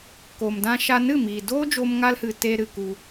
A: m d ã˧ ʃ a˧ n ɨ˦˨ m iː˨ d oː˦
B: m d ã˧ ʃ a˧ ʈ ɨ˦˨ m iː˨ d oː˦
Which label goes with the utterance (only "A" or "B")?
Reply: A